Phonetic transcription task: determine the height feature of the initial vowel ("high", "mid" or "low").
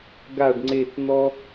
low